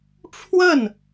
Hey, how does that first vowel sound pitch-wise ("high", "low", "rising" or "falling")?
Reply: falling